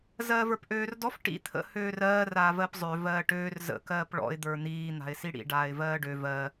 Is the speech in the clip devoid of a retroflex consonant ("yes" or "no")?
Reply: no